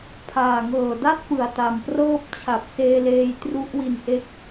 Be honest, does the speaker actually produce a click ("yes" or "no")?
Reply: no